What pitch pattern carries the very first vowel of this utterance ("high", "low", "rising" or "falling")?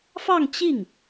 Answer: falling